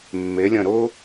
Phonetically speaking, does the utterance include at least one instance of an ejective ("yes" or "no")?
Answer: no